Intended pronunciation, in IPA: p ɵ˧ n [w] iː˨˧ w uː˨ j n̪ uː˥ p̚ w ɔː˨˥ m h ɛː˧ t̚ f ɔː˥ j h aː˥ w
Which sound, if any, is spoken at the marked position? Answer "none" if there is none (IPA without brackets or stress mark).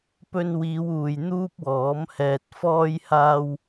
w